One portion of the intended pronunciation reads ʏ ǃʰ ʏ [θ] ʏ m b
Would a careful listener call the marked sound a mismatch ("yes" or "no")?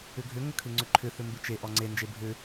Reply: no